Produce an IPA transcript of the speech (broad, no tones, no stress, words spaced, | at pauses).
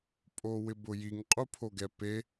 pʼowɪbʊjiŋ qʼupʰoɡɛpe